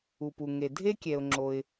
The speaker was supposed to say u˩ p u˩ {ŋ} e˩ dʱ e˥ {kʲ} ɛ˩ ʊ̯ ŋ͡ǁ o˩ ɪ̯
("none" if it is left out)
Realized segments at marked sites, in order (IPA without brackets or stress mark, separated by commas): ŋ, kʲ